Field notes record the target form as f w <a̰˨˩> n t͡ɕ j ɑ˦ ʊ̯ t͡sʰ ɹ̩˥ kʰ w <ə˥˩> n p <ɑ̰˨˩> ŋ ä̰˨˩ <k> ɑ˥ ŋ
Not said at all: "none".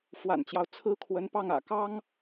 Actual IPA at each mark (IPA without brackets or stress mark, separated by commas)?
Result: a̰˨˩, ə˧˥, ɑ˥˩, k